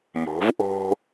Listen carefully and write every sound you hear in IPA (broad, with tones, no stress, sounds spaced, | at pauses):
m o̤˩˧ v ʔ o̤˧